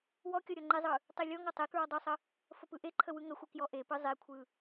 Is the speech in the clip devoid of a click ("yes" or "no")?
no